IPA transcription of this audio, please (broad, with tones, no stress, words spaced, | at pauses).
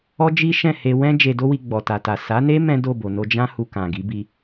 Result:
ɔ˦d͡ʒi˦ʃɛ̃˦˨ he˧wɛ̃˦ d͡ʒe˧do˦wi˧ ɡ͡bɔ˨ta˨ta˨ sa˨˦ne˦ mɛ̃˦do˦˨bo˨no˧ d͡ʒã˦ hu˧kã˨ɡi˨˦ bi˧